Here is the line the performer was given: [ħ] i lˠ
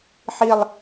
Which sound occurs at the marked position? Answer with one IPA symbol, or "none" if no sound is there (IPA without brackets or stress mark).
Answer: ħ